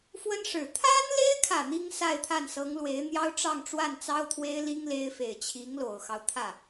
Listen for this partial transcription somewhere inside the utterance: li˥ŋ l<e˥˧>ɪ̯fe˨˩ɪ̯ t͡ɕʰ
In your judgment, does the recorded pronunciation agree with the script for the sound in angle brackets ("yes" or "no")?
no